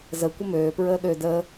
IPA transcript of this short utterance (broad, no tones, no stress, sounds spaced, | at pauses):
z ə kʷ ə m øː p ɹ əː ɗ ø d əː